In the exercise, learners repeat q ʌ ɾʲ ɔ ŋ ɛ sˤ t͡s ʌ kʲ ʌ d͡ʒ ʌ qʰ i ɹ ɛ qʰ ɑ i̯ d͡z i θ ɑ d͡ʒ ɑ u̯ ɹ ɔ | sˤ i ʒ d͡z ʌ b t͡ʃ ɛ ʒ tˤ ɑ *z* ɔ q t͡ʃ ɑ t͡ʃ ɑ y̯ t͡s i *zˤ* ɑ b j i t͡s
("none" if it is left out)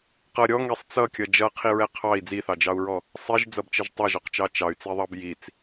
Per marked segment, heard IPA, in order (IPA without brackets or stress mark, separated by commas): ʒ, ðˤ